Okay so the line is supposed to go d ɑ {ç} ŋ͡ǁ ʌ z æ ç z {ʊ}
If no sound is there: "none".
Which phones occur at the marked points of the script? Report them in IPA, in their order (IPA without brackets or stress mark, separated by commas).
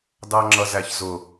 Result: none, ʊ